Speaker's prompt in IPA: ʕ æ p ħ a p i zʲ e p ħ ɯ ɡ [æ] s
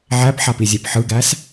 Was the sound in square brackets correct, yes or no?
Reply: yes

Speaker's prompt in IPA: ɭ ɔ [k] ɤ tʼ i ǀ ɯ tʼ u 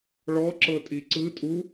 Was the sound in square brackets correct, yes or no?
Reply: no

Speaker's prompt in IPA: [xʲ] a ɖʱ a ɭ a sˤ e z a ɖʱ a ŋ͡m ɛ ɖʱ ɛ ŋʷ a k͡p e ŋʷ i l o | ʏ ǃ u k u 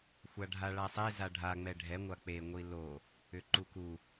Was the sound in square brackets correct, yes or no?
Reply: no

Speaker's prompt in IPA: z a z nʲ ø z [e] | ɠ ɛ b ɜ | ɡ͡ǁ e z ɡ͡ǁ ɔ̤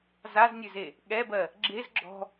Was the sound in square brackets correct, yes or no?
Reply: yes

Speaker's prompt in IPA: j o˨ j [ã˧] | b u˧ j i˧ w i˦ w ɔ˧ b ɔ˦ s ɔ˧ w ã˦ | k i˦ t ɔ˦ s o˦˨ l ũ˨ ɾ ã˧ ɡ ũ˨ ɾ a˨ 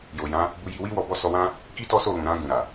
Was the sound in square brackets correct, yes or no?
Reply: no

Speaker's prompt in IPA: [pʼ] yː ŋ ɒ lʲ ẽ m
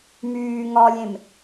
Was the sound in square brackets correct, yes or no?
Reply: no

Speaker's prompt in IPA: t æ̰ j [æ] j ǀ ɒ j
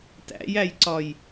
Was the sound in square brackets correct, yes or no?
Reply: yes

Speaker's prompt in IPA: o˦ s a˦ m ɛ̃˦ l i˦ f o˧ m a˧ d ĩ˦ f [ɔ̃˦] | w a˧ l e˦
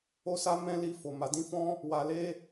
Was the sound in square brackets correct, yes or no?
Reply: yes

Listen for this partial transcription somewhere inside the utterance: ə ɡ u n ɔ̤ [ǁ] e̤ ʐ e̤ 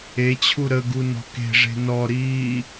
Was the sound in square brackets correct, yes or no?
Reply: no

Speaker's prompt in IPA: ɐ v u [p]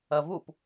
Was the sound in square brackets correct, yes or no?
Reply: yes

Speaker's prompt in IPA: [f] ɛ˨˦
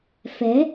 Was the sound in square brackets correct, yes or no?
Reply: yes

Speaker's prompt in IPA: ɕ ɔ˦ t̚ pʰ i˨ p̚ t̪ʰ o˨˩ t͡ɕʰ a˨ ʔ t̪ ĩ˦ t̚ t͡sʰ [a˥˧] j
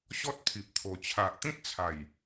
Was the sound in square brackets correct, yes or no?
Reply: no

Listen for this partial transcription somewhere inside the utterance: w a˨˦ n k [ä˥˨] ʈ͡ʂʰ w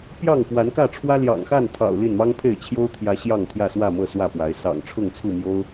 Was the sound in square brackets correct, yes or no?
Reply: yes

